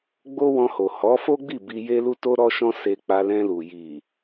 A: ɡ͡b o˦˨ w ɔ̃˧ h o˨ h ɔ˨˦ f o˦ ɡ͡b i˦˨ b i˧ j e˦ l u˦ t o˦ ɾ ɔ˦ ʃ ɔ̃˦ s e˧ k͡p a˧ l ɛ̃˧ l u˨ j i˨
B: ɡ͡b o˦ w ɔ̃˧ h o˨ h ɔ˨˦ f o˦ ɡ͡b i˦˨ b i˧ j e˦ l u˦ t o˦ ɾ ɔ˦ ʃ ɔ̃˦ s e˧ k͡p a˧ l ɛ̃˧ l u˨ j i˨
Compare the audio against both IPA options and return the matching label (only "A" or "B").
B